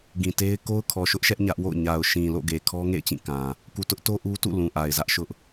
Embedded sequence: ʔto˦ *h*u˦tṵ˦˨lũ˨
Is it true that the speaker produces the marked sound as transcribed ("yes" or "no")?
no